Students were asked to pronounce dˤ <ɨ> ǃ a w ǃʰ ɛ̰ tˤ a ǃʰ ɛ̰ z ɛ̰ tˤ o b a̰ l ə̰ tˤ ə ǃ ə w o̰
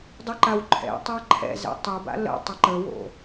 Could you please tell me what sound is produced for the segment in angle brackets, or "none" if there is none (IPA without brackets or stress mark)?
ɨ